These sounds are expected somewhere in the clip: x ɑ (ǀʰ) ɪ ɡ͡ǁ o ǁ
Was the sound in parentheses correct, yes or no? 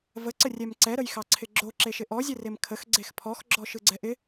yes